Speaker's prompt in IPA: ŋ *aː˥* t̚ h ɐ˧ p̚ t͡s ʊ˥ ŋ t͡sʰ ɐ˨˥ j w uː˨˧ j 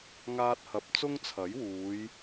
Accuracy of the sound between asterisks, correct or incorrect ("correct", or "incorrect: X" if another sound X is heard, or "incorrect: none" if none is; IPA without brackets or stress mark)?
correct